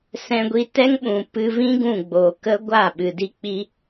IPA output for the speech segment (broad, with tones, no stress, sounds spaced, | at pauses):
s ɛ̃˧ ɡʷ i˧ t ɛ˦ ŋ ɓ ũ˨ p ɨ˧ v ĩ˦ ɡ ũ˦˨ ɡ͡b oː˨ k ə˦ ɡʷ a˦˨ ɓ ɨ˨ d i˦ k͡p i˦